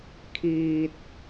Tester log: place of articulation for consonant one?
velar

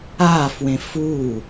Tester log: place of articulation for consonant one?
labial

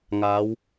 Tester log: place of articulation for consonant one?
velar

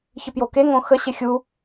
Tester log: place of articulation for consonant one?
palatal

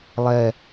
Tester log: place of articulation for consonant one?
alveolar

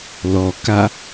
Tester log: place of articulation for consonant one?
alveolar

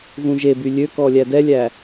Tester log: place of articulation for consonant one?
velar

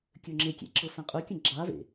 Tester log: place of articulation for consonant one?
velar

